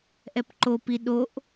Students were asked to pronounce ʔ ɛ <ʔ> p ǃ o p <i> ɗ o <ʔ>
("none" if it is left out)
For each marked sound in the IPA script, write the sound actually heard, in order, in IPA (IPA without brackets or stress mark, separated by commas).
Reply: none, i, ʔ